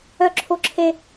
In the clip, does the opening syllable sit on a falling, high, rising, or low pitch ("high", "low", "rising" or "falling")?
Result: falling